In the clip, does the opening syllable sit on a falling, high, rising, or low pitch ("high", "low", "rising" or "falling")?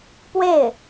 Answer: falling